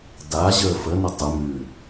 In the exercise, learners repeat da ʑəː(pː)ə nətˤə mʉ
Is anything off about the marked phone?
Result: yes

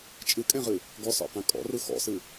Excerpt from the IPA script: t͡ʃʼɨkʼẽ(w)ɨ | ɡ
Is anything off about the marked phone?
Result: yes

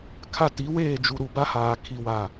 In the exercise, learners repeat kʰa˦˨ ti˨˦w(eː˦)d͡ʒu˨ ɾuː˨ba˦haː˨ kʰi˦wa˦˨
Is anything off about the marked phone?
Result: yes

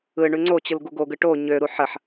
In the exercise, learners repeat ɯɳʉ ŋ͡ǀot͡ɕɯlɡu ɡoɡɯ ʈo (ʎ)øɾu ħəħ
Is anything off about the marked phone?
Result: yes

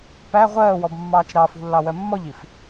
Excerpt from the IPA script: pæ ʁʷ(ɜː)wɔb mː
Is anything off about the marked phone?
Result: no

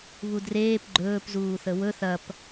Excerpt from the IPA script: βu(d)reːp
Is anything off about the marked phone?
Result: no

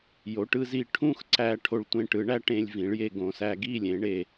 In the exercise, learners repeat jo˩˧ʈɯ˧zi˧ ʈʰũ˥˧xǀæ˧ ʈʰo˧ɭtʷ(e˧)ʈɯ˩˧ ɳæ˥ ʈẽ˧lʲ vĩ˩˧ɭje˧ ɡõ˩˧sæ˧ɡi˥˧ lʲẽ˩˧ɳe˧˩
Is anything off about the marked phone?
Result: yes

